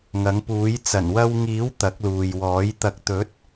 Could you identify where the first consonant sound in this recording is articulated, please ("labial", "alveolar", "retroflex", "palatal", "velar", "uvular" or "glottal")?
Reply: velar